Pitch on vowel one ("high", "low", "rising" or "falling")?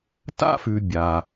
high